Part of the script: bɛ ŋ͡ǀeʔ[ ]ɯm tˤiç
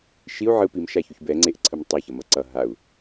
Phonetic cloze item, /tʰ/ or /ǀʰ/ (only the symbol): ǀʰ